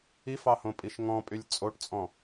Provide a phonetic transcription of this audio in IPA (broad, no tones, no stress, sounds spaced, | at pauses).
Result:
i f ɑ h õ pʼ i ʃ ŋ ɔ̃ pʼ y lʲ t͡sʼ o ʈ t͡sʼ ɔ̃